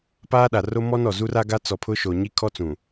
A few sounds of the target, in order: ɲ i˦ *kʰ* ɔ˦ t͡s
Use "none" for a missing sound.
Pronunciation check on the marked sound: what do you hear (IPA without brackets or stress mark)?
kʰ